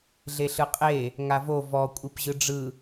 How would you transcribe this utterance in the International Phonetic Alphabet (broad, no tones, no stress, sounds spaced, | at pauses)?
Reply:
ɮ e ɬ ɯ qʼ e | ŋ a v o v ɔ kʷʼ i p ʑ ɯ ɖ͡ʐ ɯ